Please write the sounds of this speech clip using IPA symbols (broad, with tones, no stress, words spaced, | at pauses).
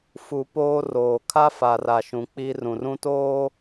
fu˨ poː˦roː˨ kʰa˦fa˨ra˨ʃũ˨ k͡pi˦ rũ˨rũ˦toː˦